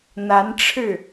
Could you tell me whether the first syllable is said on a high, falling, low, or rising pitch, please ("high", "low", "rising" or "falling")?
rising